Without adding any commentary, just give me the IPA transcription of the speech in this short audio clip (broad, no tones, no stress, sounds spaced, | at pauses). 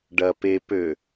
ɖ ɐ p e p ø